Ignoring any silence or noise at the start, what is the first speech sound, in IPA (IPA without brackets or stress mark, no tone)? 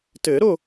t